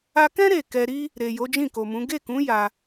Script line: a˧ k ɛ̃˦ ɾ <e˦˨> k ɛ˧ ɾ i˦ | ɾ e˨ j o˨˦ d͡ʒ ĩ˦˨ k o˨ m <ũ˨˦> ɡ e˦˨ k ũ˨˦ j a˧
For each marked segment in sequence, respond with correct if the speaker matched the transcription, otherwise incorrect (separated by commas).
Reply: correct, correct